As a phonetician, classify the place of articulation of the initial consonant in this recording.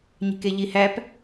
palatal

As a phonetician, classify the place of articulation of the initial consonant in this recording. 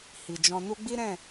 glottal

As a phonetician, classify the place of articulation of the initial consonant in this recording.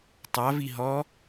alveolar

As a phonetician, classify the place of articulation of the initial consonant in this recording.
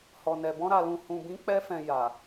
glottal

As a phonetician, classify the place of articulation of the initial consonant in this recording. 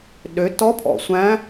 alveolar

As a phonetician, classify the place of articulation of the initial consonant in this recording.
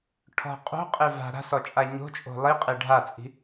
retroflex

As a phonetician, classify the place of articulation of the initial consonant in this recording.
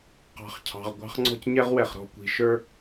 uvular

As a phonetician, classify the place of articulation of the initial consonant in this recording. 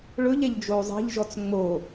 retroflex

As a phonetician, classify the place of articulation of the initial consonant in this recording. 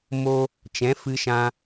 labial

